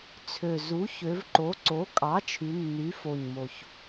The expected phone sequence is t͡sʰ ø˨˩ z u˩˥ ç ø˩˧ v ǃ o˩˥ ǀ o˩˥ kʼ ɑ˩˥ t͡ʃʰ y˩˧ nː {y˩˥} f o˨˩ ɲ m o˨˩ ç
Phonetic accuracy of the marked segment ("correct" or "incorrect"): correct